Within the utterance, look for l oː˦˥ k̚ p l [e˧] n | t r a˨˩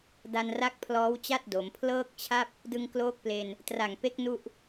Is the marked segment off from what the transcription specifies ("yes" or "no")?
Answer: no